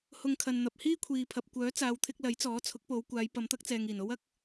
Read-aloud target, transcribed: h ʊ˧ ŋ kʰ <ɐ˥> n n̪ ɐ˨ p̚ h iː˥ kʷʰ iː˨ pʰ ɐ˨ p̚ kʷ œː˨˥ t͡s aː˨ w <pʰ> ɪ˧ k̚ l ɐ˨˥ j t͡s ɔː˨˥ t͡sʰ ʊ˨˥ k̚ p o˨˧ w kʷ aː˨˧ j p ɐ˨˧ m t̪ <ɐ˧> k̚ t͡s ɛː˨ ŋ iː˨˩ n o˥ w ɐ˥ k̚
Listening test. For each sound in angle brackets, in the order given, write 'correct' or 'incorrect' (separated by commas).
incorrect, incorrect, incorrect